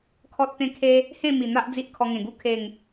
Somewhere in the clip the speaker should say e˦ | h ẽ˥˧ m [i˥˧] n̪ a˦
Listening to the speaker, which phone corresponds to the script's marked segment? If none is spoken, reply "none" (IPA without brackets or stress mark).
i˨˩